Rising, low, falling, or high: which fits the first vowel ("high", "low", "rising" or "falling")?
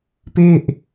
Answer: falling